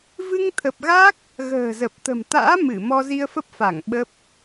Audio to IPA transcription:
v ɨ˧ ŋ t̪ʰ ə˨˩ p̚ ɣ a˦˥ k̚ | ɣ ə̤ː˨˩ z ə˨˩ p̚ t̪ ə̤˨˩ m t̪ a̰ː˧˥ m ɨ˧˩ m ɔ˧ z i˧ ə̯ f ə˦˥ p̚ f a˧˩ ŋ ɓ ə˦˥ p̚

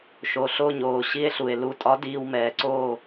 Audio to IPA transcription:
ʃ o˩ ɬ o˧˩ ɲ oː˩ ɕ i˧˩ e̯ ɬ u˩ e̯ l u˩˧˩ tʼ ɒ˨˦ d iː˩ w m ɛː˩ ǀ oː˧˩

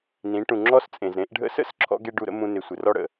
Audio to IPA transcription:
n ĩ˩˧ ʈ ũ˩ ŋ͡ǁ ɔ˧ s t͡sʼ ẽ˩ z ɾ ẽ˩˧ ʔ ɖʱ ə̰˧ s ə̰˧˥ s ǁʰ ɔ̰˥ ɡ e˥ ɖ u˧ ɾ ə̰˥ m ũ˧ n ɪ˩˧ sʷ ɪ˩ r ɔ˥ ɽ ə̰˩

